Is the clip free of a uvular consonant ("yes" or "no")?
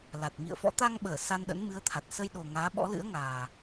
yes